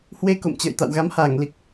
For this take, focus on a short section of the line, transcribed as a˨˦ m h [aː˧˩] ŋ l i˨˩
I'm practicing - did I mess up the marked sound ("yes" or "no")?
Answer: no